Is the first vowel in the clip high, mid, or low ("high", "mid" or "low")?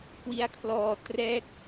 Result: high